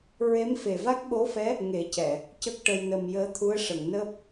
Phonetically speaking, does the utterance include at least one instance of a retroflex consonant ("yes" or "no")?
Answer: yes